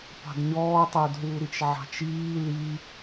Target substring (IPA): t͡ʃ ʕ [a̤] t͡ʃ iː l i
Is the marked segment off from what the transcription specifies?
yes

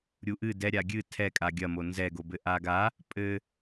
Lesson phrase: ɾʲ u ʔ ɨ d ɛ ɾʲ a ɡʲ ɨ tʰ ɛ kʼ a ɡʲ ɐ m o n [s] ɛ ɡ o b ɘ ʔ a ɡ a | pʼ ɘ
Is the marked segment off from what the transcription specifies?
yes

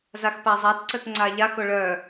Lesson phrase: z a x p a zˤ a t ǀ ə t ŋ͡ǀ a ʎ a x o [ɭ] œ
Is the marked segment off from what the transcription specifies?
no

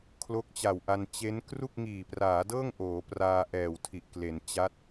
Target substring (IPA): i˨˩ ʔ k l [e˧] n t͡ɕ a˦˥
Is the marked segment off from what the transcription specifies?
yes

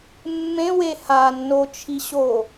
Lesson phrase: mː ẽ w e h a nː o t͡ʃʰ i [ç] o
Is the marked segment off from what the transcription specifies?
yes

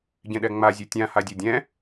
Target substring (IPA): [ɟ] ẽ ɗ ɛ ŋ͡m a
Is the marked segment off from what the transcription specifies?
no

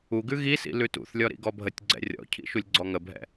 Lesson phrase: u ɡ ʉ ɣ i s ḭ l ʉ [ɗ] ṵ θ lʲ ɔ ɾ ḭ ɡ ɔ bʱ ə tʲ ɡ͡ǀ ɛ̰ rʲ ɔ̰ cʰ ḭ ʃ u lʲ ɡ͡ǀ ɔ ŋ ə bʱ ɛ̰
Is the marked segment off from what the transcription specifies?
yes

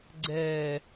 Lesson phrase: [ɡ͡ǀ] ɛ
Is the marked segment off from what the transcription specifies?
no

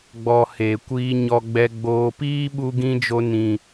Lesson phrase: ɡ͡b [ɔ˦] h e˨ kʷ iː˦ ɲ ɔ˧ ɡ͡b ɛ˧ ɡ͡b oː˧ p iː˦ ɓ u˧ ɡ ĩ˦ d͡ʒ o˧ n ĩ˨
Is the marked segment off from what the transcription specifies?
yes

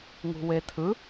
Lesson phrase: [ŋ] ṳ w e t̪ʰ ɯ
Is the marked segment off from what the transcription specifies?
no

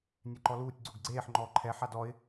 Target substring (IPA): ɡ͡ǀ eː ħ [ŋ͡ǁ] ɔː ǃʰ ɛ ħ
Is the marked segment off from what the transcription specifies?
yes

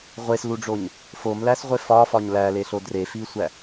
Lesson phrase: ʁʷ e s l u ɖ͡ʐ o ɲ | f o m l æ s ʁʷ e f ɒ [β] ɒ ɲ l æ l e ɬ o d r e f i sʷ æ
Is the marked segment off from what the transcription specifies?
yes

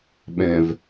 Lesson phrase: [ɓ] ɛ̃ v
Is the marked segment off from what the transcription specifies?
no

